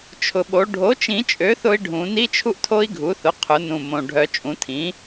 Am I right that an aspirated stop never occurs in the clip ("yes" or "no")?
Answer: no